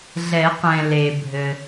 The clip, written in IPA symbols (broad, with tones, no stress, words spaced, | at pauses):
ɮɛ˨˩˦qɛ̃˩ le˩bʱɘ˩